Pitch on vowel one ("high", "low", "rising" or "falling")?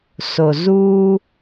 low